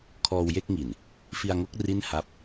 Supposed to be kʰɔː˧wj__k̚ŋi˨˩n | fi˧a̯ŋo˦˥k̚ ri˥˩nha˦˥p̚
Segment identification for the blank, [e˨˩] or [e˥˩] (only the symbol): e˥˩